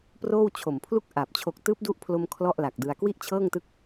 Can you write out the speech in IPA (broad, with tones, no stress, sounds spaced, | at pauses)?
p r oː˥˩ w t͡ɕʰ o˨˩ m pʰ l u˥˩ k̚ ʔ a˨˩ p̚ t͡ɕʰ o˨˩ k̚ t ɯː˦˥ p̚ d u˦˥ ʔ pʰ l o˧ m kʰ l ɔ˥˩ ʔ l a˨˩ k̚ d ɯ˧ a̯ k w i˥˩ ʔ t͡ɕʰ ɤː˥˩ ŋ t ɯ˥˩ k̚